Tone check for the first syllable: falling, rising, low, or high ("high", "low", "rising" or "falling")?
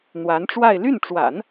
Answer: rising